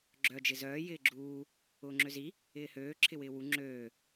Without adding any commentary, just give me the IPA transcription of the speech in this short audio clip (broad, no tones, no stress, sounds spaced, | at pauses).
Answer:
ɡ͡ǁ œ d͡ʒ ɪ z œː j ɪː ɡ͡ǁ uː | ʊː ŋ͡ǁ ø z i | ɪː h øː ǁʰ ɪ w ɪː w u ŋ͡ǁ øː